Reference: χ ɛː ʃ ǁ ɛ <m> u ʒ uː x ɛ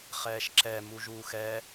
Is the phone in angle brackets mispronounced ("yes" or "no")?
no